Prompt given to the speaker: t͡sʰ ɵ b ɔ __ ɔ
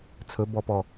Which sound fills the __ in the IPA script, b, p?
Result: p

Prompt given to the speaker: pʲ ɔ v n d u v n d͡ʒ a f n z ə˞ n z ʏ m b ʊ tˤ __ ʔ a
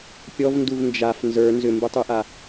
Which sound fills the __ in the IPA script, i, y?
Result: y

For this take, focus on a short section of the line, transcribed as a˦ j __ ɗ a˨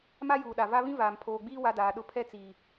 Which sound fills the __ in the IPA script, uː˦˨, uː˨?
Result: uː˨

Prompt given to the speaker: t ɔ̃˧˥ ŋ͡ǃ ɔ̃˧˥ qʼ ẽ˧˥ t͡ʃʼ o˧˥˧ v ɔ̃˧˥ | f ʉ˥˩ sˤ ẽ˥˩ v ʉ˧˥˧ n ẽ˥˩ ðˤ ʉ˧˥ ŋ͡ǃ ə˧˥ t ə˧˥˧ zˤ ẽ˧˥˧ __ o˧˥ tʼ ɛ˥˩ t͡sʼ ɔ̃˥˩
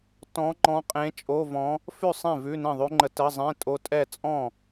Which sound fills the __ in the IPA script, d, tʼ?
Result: tʼ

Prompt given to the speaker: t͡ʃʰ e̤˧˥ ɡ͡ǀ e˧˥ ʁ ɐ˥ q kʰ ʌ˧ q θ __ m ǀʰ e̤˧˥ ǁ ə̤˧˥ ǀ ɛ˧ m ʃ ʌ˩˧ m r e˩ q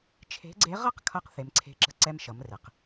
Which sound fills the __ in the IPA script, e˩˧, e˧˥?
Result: e˩˧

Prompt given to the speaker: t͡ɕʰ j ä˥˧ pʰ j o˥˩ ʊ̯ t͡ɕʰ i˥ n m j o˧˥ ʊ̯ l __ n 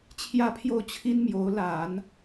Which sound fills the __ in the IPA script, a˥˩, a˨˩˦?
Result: a˨˩˦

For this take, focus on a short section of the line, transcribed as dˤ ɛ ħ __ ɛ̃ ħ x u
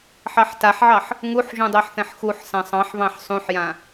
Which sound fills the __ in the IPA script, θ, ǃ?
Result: θ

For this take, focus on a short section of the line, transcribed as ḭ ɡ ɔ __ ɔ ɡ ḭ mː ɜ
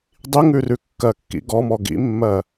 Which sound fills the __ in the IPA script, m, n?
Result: m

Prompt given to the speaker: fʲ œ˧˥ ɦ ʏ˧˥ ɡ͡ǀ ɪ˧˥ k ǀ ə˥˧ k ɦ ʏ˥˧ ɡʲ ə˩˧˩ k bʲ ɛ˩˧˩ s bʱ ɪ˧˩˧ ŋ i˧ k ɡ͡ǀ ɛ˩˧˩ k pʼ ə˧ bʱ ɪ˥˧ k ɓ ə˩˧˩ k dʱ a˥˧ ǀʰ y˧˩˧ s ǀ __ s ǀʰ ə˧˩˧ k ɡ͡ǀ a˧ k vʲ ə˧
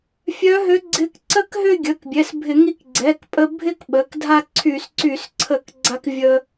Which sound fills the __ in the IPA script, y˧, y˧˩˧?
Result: y˧˩˧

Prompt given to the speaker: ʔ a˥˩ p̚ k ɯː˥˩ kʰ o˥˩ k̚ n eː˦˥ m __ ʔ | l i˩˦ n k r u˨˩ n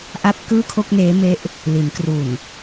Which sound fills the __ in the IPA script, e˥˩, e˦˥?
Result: e˦˥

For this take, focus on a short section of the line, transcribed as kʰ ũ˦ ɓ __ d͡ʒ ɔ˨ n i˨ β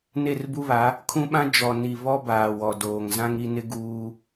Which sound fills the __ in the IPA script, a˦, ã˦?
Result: ã˦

